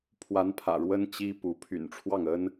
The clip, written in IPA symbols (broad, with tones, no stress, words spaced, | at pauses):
pʰwa˧˥n pʰä̰˨˩ɻwə˥n t͡ɕi˥ pu˧˥ pʰy̰˨˩nʈ͡ʂʰwɑ˥˩ŋə˥n